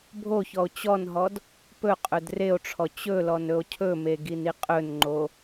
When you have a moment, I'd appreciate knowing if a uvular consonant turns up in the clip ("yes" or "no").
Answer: yes